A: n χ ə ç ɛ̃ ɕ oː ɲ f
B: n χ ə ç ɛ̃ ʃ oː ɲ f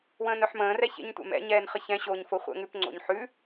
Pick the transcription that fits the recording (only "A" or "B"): A